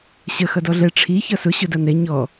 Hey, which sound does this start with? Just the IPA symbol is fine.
ɕ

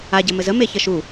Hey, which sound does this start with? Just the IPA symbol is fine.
a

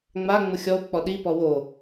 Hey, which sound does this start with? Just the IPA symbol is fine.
ŋ͡m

